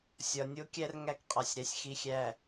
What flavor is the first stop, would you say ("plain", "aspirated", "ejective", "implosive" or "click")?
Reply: plain